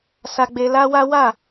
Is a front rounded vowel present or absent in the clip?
absent